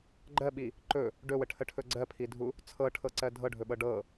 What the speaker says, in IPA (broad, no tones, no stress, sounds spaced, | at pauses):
ɡ͡ǃ ɜ ɓ i | ǃ ɵ | ɖ ɵ w ə ʈʰ ə ʈʰ ɵ ɡ͡ǀ ɜ pʰ i dʱ u | t͡sʰ ɤ ʈʰ ɤ ǀ ɜ dʱ ɤ ɖʱ ɵ ɓ ɤ ɖ ɤ